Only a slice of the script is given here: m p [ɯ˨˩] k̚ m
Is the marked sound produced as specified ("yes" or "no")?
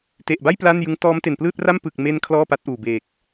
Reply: yes